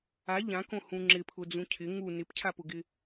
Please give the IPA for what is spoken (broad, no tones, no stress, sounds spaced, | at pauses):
a ʎ ã k õ h ũ ŋ͡ǁ ɪ pʰ ʊ d͡z ũ cʰ ɪ ŋ u n ɪ p cʰ a p ʊ ɡ ɪ